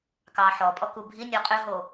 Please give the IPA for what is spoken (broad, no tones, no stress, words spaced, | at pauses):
kɑːħɔpʼɔ kubʱi nʲɔqʼʏɦo